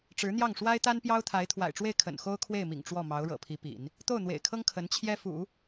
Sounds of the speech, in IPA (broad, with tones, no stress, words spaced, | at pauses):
ʈ͡ʂɻ̩˧˥n̪jɑ˥˩ŋ ʂwa˥ɪ̯t̪a˥npjɑ˥ʊ̯t̪ʰa˧˥ɪ̯ t̪ʰwa̰˨˩ɪ̯ʈ͡ʂwe˥˩ɪ̯ kʰə̰˨˩nxo˥ʊ̯kʰwe˥˩ɪ̯mḭ˨˩ŋ ʈ͡ʂwɔ˥˩mɑ˧˥ʊ̯ ɻɤ̰˨˩pʰi˧˥pḭ˨˩˦n | t̪o˥˩ʊ̯n̪wḛ˨˩ɪ̯kʰɤ˥ŋ kʰə˧˥nt͡ɕʰjɛ˥ fṵ˨˩˦